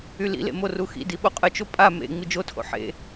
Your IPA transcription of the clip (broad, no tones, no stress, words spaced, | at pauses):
ylḭlḛ moruxḭdi ɓoqʼət͡ʃo pʼa mḛ ŋ͡mid͡ʒotʰo̰ ħḛ